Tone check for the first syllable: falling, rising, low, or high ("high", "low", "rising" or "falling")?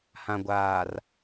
low